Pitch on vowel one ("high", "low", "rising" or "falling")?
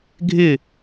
falling